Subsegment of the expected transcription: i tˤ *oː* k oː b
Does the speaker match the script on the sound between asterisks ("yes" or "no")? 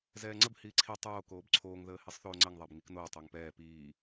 yes